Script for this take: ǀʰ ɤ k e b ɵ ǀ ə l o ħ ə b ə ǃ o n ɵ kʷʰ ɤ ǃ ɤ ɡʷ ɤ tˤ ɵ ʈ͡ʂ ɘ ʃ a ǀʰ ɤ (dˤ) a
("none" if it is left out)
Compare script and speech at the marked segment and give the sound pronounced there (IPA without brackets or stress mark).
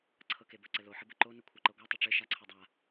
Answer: dˤ